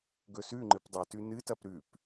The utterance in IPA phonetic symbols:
ɡ ɵ s ʉ ŋ͡ǃ ɨ p dˤ ɵ t ʉ n ɨ t ɐ p ɾ ʉ p

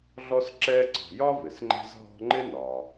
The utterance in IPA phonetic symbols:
ɮ ɔ˦ s ǁ ɛː˦ ǀ ɔ̤˨ j ɒ˥ v ɪ˩ s ŋ͡ǃ ɛ̤˥ z ɦ ɔ̤˦ ŋ͡ǃ ɪ˥ n ɒː˩

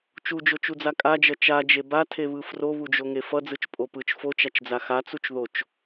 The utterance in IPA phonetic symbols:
t͡ʃ u d͡ʒ o t͡ʃ u d͡z a kʼ a d͡ʒ ʌ t͡ʃ a d͡ʒ e b a tʰ e β ɯ f r o β u d͡ʒ o ŋ e f ʌ d͡z ɯ t͡ʃ pʼ o p ɯ t͡ʃ f o t͡ʃ a t͡ʃ d͡z a x a t͡s u t͡ʃ ð o t͡ʃ

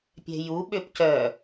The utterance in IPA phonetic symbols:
pʲ ɛ̤ j u ɓ ø p c œ

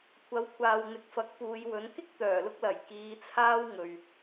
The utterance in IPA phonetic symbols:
kʷʰ ɐ˨˥ w kʷʰ aː˨ w n̪ ɪ˨ k̚ f ɐ˨˥ k̚ p uː˨˧ j w ɵ˨˥ n k ɪ˥ k̚ t̪ œː˨˩ l ʊ˧ k̚ l ɐ˨˩ j k iː˨˧ t͡sʰ aː˥ w ŋ ɵ˨ ɥ

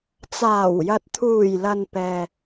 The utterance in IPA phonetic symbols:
t͡s aː˨˩ w j ɐ˨ t̚ t̪ʰ uː˨˩ j l ɐ˨ n p ɛː˨

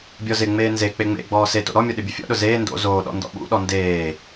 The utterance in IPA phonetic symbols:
bʲ ɔ z ɪ ŋ͡m eː n z e k͡p e ŋ͡m ḛ ɡ͡b ɔː s e t o̰ ɾ ɔ mʲ ɔ ɗ ɪ bʲ ʊ fʲ ɔ̰ ɗ ʊ z eː n d o̰ z oː ɗ ɔ̰ n d ɔ̰ ɓ ṵ ɗ ɔ n d eː

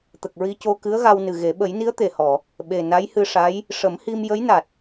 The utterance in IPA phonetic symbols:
t̪ ə˨˩ k̚ ɹ i˧ c o˧ k ɨ˧˥ ə̯ ɣ a˧ w n ɨ˨˩ ɣ e˨˩˦ ɓ ə˨˩˦ j n i˧˥ ə̯ t̪ e˨˩ h ɔ˨˩˨ | ɓ e˨˩ n a˧˥ j h ɨ˧ ʂ a˧˥ j | ʂ ə˨˩˦ m h i˧ m j ə˧˥ j n a˨˩ t̚

